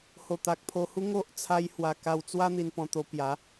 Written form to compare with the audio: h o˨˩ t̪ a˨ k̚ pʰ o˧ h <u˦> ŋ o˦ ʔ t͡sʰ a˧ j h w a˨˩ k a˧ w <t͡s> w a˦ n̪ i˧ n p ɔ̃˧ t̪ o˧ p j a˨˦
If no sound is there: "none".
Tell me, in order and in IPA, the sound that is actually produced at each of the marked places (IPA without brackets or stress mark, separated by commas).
u˦, t͡s